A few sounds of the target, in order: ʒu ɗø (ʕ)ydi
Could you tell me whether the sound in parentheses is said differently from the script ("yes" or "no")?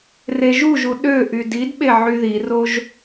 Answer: yes